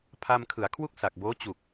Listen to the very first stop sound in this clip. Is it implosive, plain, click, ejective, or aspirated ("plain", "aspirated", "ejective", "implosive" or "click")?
aspirated